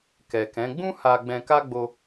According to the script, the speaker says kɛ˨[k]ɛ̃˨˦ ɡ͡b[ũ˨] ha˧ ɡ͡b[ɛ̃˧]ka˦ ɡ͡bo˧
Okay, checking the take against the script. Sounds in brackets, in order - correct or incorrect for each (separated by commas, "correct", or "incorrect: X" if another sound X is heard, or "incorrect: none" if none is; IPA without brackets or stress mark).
correct, incorrect: ũ˦, correct